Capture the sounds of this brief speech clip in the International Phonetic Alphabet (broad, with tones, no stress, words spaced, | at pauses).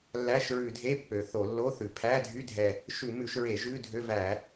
lːæ˧˥˧ʃɹʉ˧˩˧dʱe˧˥˧ pːø˨˩θo˧˩˧lːo˧˥˧θʉ˨˩ pʰæ˧˥˧ dʱy˧˥˧dʱɛ˨˩ | ʃʉ˧˩˧ mʉ˧˩˧ʃɹe˧˩˧ ʒʉ˧˥˧dʱø˧˥˧væ˧˩˧